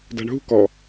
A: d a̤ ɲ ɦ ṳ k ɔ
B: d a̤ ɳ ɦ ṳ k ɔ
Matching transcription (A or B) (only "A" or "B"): B